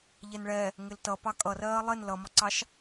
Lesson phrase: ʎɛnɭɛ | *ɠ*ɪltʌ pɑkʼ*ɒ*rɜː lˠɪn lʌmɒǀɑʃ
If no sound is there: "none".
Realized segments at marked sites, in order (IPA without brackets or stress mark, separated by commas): ŋ, ʌ